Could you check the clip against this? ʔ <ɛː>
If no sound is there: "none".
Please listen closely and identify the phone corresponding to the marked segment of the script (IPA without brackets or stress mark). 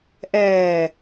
ɛː